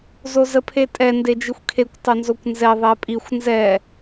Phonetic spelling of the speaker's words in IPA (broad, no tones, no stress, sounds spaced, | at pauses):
z o z ə pʰ e tʼ ɛ n d e d͡ʒ i xʷ kʰ e kʷ tˤ ɵ n z o kʷ n z ɛ ðˤ ɛ pʼ i xʷ n z ɛ